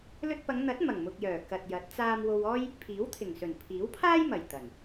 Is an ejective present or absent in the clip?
absent